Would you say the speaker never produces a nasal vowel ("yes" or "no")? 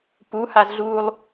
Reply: yes